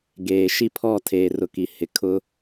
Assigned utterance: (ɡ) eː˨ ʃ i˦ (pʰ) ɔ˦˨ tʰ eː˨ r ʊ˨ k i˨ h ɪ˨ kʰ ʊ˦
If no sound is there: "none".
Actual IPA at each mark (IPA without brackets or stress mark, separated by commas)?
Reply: ɡ, pʰ